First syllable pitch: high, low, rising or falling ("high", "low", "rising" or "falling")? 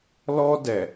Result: high